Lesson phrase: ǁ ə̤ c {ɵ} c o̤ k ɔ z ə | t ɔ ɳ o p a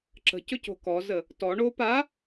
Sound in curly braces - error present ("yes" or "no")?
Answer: no